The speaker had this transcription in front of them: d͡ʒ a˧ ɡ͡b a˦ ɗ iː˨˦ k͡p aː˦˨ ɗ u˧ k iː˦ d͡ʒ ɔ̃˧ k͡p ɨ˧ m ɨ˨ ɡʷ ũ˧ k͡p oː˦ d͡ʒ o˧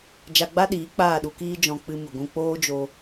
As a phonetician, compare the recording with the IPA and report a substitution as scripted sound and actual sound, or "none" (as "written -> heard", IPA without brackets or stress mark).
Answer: none